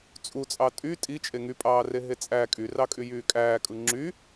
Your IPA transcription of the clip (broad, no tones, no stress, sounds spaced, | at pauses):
t͡sʼ u t͡sʼ ɑ tʼ y tʼ i t͡ʃʼ e ŋ y pʼ ɑː r e ɦ e t͡sʼ æ kʼ y r ɑ kʼ y j yː kʼ æː kʼ ɯ ŋ͡ǁ y